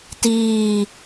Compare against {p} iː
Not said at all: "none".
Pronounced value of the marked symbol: t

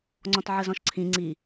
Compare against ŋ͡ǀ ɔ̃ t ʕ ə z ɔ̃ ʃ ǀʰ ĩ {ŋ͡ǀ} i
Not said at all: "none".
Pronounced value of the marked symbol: ŋ͡ǀ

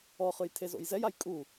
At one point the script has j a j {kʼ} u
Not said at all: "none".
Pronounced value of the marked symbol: kʼ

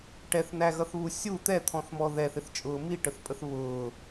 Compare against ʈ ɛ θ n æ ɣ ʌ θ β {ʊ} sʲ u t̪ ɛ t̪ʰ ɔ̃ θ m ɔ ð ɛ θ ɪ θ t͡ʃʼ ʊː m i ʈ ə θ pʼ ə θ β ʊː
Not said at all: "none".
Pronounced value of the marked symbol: u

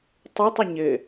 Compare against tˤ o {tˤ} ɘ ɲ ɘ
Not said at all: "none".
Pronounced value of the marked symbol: tˤ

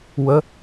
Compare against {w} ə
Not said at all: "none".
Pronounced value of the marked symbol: w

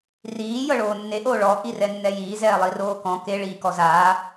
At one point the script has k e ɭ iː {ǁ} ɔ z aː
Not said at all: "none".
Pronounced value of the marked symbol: k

